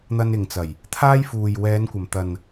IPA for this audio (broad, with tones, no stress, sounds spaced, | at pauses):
n̪ ɐ˧ n ɪ˨ ŋ t͡s ɐ˨˩ j | t̪ʰ aː˥ j f uː˨ j w ɛː˨˧ n kʷ ɐ˨˩ m t̪ ɐ˨ n